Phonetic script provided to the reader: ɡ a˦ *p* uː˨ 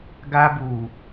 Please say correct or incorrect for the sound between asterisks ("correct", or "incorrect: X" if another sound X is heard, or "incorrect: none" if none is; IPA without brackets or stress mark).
incorrect: b